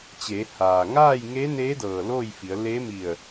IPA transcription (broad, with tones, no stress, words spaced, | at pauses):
t͡ɕeː˩˧ haː˩ŋaː˥˨j ŋeː˧˥neː˧˥ dɤː˧˩loː˥˨jfi˩˧ə̯ leː˧˥mi˧˩ə̯